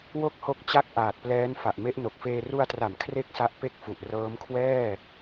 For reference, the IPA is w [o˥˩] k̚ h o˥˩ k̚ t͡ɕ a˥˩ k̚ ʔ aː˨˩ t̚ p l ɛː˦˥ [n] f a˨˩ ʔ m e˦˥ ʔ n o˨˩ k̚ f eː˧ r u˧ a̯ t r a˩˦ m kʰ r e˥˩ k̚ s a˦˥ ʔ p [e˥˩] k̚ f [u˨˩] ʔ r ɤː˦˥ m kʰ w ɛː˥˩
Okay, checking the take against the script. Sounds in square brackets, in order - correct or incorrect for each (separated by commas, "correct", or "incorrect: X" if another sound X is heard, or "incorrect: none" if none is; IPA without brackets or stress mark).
correct, correct, correct, correct